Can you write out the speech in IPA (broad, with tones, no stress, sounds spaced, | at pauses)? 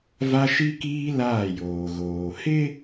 v a˦ ʃ i˦ k iː˦ l aː˦˨ j oː˨ ɣ oː˨ h ɪ˦